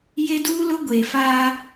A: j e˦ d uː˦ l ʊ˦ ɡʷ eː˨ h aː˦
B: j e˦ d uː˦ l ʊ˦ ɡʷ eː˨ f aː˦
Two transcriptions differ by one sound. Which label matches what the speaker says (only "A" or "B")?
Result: B